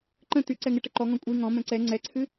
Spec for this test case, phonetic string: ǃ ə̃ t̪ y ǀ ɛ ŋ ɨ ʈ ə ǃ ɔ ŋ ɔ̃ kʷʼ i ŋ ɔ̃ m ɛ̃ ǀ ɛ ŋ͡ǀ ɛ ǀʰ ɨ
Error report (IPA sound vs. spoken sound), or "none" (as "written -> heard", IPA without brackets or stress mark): none